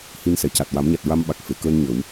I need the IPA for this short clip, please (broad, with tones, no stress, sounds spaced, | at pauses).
h i˧ n s ɛ˨˩˨ c a˨˩ t̚ w a˨˩˦ m ɲ a˨˩ t̚ ɹ a˧ m ɓ a˨˩ k̚ f e˨˩˨ k əː˧ n ɲ ə˨˩˦ w